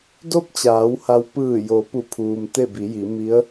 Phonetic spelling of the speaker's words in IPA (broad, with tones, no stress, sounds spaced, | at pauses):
d o˥˨ p̚ t͡ɕ aː˩˧ w h a˧ w p ɯː˧˩ j o˩˧ p u˧˩ pʰ uː˩ m t̪ e˥˨ b i˩˧ j i˩˧ m i˧˥ ə̯